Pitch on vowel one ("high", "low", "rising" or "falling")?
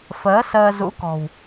rising